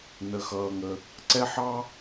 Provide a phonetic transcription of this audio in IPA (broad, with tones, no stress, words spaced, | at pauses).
nə˦xʌː˦ŋə˦ | ǀɛ˦ħɑ˦